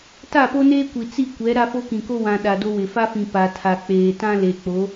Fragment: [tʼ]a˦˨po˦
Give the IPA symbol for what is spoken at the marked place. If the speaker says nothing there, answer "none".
t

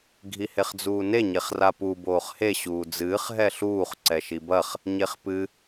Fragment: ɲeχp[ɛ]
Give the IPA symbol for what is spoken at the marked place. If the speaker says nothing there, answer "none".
ɨ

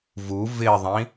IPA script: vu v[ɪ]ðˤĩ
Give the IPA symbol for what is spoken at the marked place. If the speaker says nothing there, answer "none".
ɪ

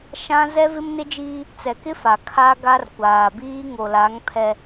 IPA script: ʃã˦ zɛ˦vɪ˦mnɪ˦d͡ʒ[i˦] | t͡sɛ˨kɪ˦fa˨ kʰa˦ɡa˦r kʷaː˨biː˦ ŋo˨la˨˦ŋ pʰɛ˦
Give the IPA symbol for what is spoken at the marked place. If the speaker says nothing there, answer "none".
iː˦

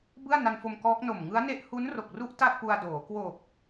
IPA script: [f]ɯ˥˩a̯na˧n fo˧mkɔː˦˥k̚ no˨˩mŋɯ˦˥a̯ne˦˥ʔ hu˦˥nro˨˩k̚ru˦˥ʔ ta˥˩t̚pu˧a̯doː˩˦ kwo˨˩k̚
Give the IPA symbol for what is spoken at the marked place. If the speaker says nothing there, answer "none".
b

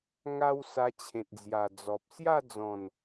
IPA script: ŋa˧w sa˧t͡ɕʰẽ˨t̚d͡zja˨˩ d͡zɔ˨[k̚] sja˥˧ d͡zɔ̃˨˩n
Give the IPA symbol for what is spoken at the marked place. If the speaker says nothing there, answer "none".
p̚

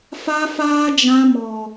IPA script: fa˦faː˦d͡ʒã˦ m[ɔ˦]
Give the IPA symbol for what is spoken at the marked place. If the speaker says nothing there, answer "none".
ɔ˦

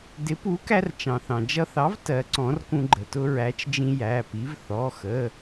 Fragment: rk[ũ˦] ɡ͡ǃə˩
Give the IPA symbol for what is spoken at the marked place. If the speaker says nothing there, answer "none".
ũ˦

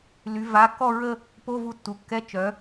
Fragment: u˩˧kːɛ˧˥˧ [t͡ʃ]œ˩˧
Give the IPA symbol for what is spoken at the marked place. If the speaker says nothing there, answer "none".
t͡ʃ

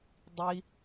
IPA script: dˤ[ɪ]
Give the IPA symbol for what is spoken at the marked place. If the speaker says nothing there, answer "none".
i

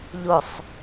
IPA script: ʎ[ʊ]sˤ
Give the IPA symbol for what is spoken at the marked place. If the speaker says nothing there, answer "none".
ʊ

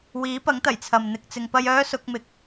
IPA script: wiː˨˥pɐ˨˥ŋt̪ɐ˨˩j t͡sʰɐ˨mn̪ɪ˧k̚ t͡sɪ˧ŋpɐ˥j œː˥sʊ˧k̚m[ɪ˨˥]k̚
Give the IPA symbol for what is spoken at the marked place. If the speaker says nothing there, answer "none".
ɪ˨˥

